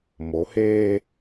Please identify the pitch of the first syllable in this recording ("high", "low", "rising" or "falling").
rising